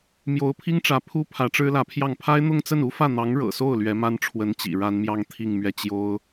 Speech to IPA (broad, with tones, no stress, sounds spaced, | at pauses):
m j o˧˥ ʊ̯ pʰ i˥ ŋ ʈ͡ʂ ä˧˥ pʰ u˥ pʰ ä˧˥ ʈ͡ʂ ɻ̩˥ l ä˧˥ pʰ j ɑ˥˩ ŋ pʰ a˥ ɪ̯ n̪ ʊ˥˧ ŋ t͡s ə˥˩ n u˥ f ä˥˩ n̪ ɑ˧˥ ŋ ɻ ɤ̰˨˩ s o˥˩ ʊ̯ l ɥ ɛ˧˥ m a˥ n ʈ͡ʂʰ w ə˧˥ n t͡ɕ ḭ˨˩ ɻ a˧˥ n m j ɑ˥˧ ŋ t̪ʰ i˥˧ ŋ m ɥ ɛ˥˩ t͡ɕ j o˥ ʊ̯